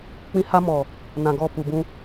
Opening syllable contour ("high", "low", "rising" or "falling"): high